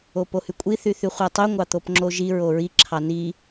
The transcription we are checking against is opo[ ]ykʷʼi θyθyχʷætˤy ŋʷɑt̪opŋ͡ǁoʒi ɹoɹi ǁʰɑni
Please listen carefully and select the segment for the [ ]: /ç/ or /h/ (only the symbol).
h